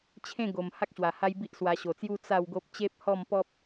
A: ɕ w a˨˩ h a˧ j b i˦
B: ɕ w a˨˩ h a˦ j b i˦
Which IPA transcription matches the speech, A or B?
B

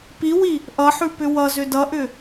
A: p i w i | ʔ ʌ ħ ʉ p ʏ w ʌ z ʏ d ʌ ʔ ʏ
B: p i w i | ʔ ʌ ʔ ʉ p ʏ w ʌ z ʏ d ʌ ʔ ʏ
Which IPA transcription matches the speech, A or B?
A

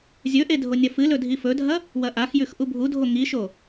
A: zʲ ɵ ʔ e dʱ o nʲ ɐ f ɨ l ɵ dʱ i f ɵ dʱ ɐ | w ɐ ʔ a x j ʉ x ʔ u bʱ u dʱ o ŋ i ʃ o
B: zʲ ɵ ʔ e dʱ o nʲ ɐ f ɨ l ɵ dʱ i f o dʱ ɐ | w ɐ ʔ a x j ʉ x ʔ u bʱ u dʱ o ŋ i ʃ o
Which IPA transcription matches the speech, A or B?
A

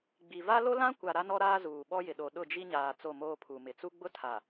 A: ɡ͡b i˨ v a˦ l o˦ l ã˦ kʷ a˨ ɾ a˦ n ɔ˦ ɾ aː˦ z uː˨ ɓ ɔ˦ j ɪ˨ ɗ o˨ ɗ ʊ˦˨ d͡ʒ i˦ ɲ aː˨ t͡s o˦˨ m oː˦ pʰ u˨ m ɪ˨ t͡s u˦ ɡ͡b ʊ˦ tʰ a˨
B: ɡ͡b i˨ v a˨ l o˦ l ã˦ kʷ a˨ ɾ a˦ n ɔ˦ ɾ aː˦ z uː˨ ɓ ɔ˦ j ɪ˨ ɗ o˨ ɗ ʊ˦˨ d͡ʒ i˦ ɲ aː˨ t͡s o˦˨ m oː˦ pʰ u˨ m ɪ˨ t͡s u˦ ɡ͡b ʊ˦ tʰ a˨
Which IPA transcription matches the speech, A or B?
A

